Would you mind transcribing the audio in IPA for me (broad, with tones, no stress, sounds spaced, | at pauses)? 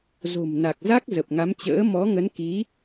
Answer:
z o̤˨˩ m n a˨˩ k̚ z a˦˥ k̚ z ə˨˩ p̚ ŋ a˨˦ m t͡ɕ ə̰ː˧˥ m ɔ˨˦ ŋ ə˨˦ n k i˨˦